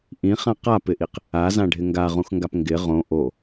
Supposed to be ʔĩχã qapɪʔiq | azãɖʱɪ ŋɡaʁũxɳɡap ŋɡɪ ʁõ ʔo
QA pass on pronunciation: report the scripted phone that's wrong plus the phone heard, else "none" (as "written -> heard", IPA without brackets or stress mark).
ɳ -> ŋ